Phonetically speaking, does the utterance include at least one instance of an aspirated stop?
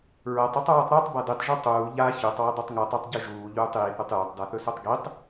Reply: no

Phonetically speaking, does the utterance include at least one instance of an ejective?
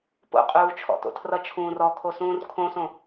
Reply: yes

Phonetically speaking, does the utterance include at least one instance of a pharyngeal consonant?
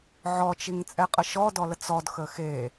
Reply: yes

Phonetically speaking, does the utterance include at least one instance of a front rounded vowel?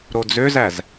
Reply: yes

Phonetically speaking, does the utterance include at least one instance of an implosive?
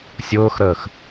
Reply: no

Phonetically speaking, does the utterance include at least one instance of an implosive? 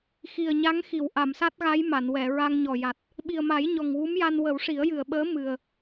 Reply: yes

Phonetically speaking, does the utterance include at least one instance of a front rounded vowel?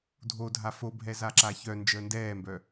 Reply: yes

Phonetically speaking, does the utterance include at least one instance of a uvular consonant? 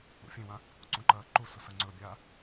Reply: no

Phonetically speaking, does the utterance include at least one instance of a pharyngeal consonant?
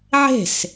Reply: yes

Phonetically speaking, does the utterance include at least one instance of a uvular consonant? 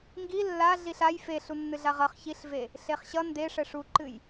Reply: yes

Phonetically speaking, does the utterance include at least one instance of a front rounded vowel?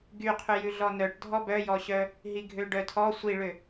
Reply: yes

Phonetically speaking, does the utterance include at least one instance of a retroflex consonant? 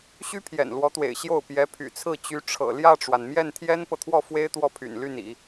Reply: yes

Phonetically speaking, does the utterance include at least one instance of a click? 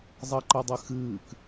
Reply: yes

